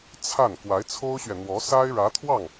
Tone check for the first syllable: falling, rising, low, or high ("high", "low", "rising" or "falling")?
falling